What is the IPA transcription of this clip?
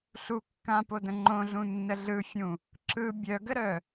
ɬ u kː ã p o d ə̃ ŋ͡ǃ õ ɮ ũ nː ə ɮ ɯ fʲ ũ | ǁ ɯ bʲ œ ɡ ə ɾ œ

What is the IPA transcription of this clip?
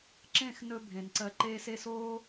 ǁ ẽ˦˨ x n ɵ˧ bʱ ẽ˨ n ǀ ɜ˧ ǃ eː˧ s e˧ s oː˦

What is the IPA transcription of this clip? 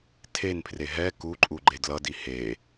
tʰ e n pʰ r e ɦ ɛ k u ǃʼ u ɡ͡ǃ e d l ʌ d i h e

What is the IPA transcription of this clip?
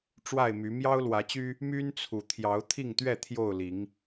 ʈ͡ʂ w a˥˨ ɪ̯ m y˨˦ m j ɑ˦ ʊ̯ l w ä˨˦ t͡ɕ y˦ | m y˦ n t͡sʰ u˨˩ t̪ʰ j ɑ˨˦ ʊ̯ t̪ʰ i˥˨ ŋ t̪ ɥ ɛ˥˨ t̪ʰ j o˥˨ ʊ̯ l i˨˦ ŋ

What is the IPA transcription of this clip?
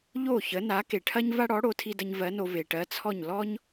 ʎ o˥˩ ç ə˩˥ n a˩˥ k e˩ ʈʰ ɐ˥ ɲ v a˥ ɽ ɔ˩˥ ɽ o˩˥ tʰ i˧ d ə˧ ɲ v ɜ˩˥ n o˧ v e˩ ʈ ɜ˩˥ t͡sʰ ɔ˥˩ ɲ l ɔ˥ ɲ

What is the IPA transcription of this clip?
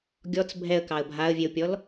ɡʲ ɔ t͡s bʱ ɛ ə̯ k ɑ ə̯ bʱ a ə̯ vʲ e ʊ̯ pʲ ɔ l

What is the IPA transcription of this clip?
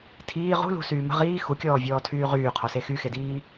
tʰ iː ʁ ṳ l ṳ s yː m ə̤ ʁ iː x u kʲ ɔː vʲ ɔː tʰ yː ʁ yː qʰ ɔ s e x y x e d iː

